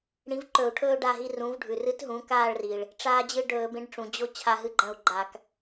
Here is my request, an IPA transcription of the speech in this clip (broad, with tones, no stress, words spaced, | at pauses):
ɽĩ˨˥vǃɵ˧˩˧u̯ʈʰɵː˦ ɖa˦˨ɦi˦ rũ˩˧vɖʱʉ˩rɨ˨˥tɦũ˩˧ kaː˦˨ɭri˩ɭ | ʈ͡ʂaː˦d͡ʑɨ˦ ɖɵː˧˩˧bẽ˨˥ɖʈ͡ʂũ˩ d͡ʑo˦ t͡ɕʰa˦˨ɦɨ˦ɡ͡ǃɐ̃˦˨u̯ɡ͡ǃa˧˩˧k